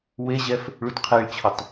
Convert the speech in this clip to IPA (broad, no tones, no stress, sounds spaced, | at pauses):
w e ʑ ɛ f | ɭ u t qʰ e ɭ t͡ɕʰ ʊ tˤ